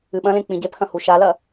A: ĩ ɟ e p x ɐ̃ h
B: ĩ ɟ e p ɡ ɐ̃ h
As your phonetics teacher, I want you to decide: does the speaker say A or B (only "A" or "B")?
A